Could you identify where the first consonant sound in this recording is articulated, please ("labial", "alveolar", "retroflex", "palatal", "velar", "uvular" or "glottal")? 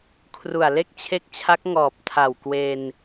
velar